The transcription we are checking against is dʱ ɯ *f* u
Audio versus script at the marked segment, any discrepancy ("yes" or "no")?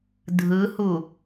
yes